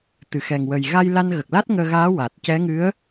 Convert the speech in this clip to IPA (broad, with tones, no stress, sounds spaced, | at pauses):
t̪ ɨ˨˩˨ x ɛ˨˩ ŋ w ə˨˩ j ɣ a˧ j l a˧ n ɣ ə˨˩ k̚ l a˦˥ t̚ ŋ əː˧ ɣ aː˧˥ w a˨˩ t̚ c ɛ˧˥ ŋ ɨ˧˥ ə̯